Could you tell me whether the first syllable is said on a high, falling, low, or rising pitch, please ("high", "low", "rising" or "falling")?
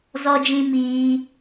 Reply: high